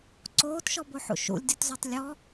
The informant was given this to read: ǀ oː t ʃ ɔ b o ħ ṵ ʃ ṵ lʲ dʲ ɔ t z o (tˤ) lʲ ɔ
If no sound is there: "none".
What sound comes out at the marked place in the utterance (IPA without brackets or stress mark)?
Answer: tˤ